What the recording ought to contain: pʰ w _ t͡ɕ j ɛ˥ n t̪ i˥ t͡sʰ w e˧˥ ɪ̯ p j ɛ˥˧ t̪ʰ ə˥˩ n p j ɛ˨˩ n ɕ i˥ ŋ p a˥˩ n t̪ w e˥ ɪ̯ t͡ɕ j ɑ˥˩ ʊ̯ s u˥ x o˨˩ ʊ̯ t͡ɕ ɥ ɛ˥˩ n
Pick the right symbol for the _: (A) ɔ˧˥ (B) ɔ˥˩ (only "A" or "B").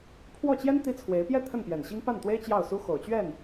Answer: B